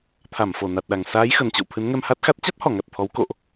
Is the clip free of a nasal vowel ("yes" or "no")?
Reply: yes